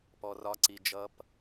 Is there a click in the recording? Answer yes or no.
yes